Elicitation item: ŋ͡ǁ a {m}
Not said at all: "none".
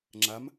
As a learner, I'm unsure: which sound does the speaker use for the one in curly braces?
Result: m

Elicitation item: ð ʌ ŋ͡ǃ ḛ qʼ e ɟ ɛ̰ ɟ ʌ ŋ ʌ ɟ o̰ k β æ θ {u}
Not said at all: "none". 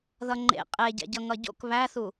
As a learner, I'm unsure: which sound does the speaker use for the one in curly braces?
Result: u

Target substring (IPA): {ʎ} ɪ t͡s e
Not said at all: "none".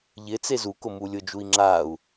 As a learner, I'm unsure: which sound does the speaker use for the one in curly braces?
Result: ʎ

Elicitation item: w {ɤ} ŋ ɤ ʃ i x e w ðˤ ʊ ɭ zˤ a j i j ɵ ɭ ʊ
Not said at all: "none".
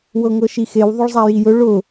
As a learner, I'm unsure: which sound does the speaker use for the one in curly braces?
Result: ɤ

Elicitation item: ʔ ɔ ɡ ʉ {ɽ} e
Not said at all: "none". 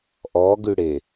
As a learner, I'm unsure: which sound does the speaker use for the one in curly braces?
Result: ɽ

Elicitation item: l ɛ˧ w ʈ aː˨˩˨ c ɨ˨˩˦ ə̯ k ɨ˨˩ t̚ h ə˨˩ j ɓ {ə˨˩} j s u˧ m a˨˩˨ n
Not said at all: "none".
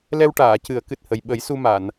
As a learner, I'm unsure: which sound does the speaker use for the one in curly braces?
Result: ə˨˩˦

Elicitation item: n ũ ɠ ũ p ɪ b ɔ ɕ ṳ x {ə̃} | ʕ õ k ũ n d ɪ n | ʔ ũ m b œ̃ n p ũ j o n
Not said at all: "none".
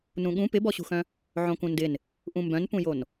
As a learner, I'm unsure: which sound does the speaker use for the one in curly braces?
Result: œ̃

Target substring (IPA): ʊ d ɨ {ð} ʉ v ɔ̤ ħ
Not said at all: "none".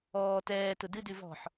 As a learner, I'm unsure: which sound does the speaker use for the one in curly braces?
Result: d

